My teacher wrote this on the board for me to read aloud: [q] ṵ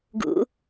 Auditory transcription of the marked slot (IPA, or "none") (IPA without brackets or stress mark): ɡ